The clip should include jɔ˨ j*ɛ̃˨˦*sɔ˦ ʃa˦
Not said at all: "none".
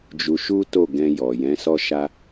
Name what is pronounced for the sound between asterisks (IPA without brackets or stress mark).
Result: ɛ̃˨˦